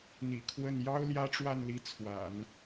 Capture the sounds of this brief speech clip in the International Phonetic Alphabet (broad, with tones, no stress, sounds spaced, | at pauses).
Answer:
n̪ ḭ˨˩ kʰ w ə˥˩ n j ɑ˥ ʊ̯ l j ä˥ ʈ͡ʂ w a˥˩ n l i˧˥ t͡sʰ w a̰˨˩˦ n